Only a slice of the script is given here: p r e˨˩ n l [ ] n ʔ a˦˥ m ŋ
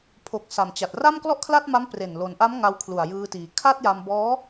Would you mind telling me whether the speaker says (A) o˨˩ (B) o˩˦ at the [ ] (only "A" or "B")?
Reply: B